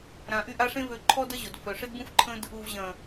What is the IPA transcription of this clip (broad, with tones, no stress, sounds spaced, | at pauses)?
ɾ ã˨ ʔ y˦˨ ʔ a˦ ʂ ẽ˦ v ø˧ ǃʰ ɔ˦ d ə˦ ʑ o˨ d f œ˨ ʂ ɪ˦ d b ũ˦ f ǃʰ ə̃˦ d | u˨ v ʑ ɐ̃˨